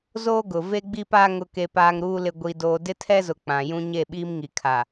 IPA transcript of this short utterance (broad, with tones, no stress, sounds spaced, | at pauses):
z oː˦ ɡ ʊ˨ v e˦ ɡ͡b i˦ p aː˦ ŋ ʊ˨ k e˨ p aː˨ ŋ ɾ uː˨ l ɪ˨ ɡʷ i˨ d oː˨ d ɪ˦ tʰ ɛ˦ z ʊ˨ k͡p ã˨ j ũ˦ ɲ e˦˨ ɓ iː˦ m ŋ i˨ kʰ a˨